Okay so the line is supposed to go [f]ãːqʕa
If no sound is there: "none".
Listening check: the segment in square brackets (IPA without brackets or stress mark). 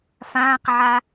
f